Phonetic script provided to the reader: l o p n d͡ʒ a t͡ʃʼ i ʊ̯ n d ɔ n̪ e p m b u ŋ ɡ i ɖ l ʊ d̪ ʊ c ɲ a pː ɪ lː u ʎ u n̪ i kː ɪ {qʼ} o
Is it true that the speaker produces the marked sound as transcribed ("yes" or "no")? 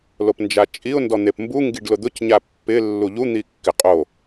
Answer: yes